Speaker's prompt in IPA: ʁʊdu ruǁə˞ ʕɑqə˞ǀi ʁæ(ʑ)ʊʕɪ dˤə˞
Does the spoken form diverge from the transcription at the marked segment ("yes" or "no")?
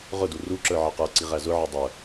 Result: yes